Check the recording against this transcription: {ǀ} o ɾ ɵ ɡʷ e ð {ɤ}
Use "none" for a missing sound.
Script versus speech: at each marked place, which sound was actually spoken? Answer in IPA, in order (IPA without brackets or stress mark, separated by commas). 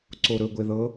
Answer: ǀ, ɤ